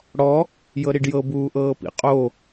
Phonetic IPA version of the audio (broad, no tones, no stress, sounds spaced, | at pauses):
ɽ ɔ | j ɤ ɾ i ɖ j ɤ b uː ʔ ɤː p ḭ qʼ o